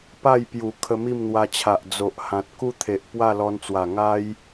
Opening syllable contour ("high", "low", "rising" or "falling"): falling